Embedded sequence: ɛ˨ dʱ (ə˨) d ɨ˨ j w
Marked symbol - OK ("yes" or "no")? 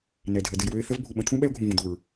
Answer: yes